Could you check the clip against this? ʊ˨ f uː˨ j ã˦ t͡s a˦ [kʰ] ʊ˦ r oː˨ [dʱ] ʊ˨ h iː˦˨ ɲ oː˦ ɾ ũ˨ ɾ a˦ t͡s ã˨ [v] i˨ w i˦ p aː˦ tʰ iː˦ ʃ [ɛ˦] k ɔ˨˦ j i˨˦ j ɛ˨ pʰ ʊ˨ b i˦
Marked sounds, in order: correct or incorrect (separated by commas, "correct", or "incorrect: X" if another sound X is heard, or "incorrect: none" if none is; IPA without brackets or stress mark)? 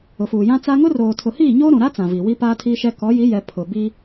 incorrect: ŋ, incorrect: tʰ, correct, correct